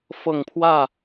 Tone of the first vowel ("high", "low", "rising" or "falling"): low